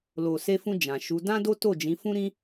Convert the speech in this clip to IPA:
l o˨ s e˧ f ũ˧ d͡ʒ ã˨ ʃ u˨˦ d ã˦ d o˦ t o˦˨ d͡ʒ ĩ˨˦ f ũ˦ ɾ ĩ˦

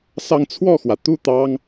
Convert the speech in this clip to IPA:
s ɑ˥˧ ŋ t͡sʰ w ɔ˥˩ x w ä˩ t̪ u˥˩ t̪ ɑ˥ ŋ

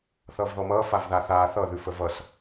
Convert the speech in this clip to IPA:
θ ʌː v ð ɔ m ʌː f a v ð a θ aː θ ʌ ð ʉ f ə v ʌ s

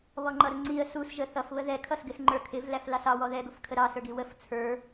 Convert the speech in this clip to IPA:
β ɔ ŋ͡ǃ ʌ ɾ ʊ ŋ͡ǀ i ə̯ s u s ʒ ə θ ʌ f β ə ð ɛ kʰ ʌ s ɡ ɪ s ŋ͡ǃ ə˞ kʰ ɪ v l æ f l ɑ s ɑ w ɔ ð ɛ ɡ ʊ f kʰ ə ɾ ɑ s ə˞ ɡ i w ə f t͡sʰ ə˞

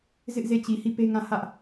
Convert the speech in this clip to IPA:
z ɪ˦ ʔ z e˦˨ t͡ɕ i˨ h i˦˨ p e˦ ŋ ã˦˨ h ä˦ ʔ

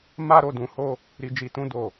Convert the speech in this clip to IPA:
m a˦ ɾ o˦˨ d ũ˧ h o˦ | ɾ i˧ d͡ʒ i˧ t ũ˦ d o˦˨

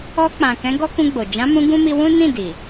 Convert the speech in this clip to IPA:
ɔ˧ k͡p ã˨ k ɛ̃˨˦ ɡ ɔ˦ k ũ˧ ɡ͡b o˨ d͡ʒ ã˨˦ m ũ˧ ɡ ũ˦ m i˧ w ũ˦ n ĩ˦˨ d i˨

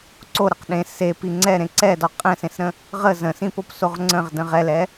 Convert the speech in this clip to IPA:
ǀ o ɾ ə q ɗ ẽ s e p i ŋ͡ǀ ɛ ɾ ẽ ǀ ɛ d ɒ qʼ ɛ̃ s ẽ s ɾ ə̃ | ʁ ə z ə̃ s ĩ p o p s o ʁ ŋ͡ǀ ə̃ ʁ d ə̃ ʁ ɛ l ɛ

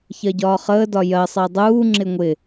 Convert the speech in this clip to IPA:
ç ɜ ɟ ɒː χ əː d ɒ j ɜ sˤ ɜ dˤ uː ŋ͡ǁ ɪ ŋʷ ɪ

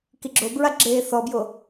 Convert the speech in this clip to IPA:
k i ɡ͡ǁ o b ɹ a ɡ͡ǁ eː θ ɔ b j o

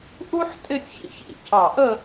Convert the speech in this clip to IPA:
ʔ u˥ ħ tʼ ɪ˥˧ tʲ ç ḭ˧ ç ḭ˧˩ cʰ ɑ˧˩ ʔ ə˥˧

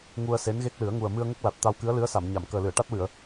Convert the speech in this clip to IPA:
ŋ u˧ ə̯ s e˧˥ n ɣ e˦˥ k̚ l ɨ˨˩˦ ə̯ ŋ u˨˩ ə̯ m ɨ˧ ə̯ ŋ ə˦˥ k̚ l a˨˩ t̚ t̪ a˧ w k ɨ˧˥ ə̯ l ɨ˧˥ ə̯ s a˨˩˨ m ɲ a˨˩˨ m k əː˨˩ l ɨ˨˩˨ ə̯ ʈ a˦˥ t̚ w ɨ˨˩˨ ə̯

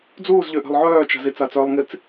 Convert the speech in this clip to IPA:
d͡z uː z ʎ ø ʔ ɛ̤ lˠ ʕ œː t͡ʃ a̤ z i t͡s a t͡s œː lˠ ŋ i t͡s

